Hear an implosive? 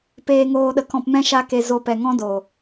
yes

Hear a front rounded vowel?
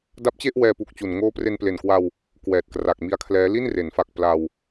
no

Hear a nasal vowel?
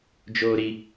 no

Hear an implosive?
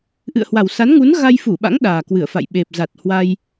yes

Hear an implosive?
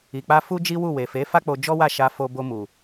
no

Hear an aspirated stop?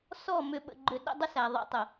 no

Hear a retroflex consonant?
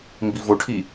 yes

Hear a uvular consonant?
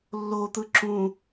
no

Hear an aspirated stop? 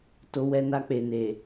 no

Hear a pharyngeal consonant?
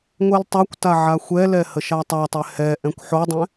yes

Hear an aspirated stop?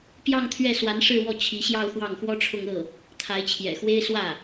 yes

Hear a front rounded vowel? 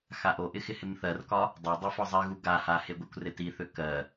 yes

